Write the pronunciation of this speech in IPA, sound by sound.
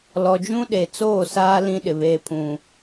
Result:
l ɔ˨ d͡ʒ ũ˦ ɗ e˨ t͡s oː˦˨ s aː˦ l ĩ˦ ɗ ɪ˨ β eː˦ pʰ ũ˦

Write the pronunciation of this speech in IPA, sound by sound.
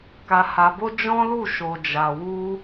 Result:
k a˧ h a˧ b o˦ d͡ʒ ɔ̃˦ l u˦˨ ʃ o˨ d͡ʒ a˨ w u˧

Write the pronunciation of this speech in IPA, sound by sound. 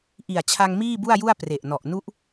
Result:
ʔ i˨˩ a̯ t͡ɕʰ a˧ ŋ m iː˥˩ b u˥˩ a̯ j u˥˩ a̯ p r e˨˩ ʔ n ɔ˨˩ ʔ n u˦˥ ʔ

